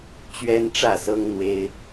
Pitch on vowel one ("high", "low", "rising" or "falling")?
high